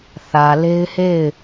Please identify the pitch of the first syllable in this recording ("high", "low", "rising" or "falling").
low